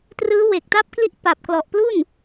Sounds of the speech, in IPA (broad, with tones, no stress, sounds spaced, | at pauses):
t r ɯː˦˥ w e˨˩ k̚ t a˦˥ p̚ k l i˦˥ ʔ p a˨˩ p̚ k l ɔ˨˩ ʔ p l u˥˩ n